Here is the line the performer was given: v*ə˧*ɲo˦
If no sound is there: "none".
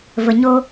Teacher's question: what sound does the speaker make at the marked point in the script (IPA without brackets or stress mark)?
ə˧